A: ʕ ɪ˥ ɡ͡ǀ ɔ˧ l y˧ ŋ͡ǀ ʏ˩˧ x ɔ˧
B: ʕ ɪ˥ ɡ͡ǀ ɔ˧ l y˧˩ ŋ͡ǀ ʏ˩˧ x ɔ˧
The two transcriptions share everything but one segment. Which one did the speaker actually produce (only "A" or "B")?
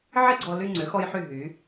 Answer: A